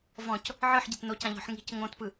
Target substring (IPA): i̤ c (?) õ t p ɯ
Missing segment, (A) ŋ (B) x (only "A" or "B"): A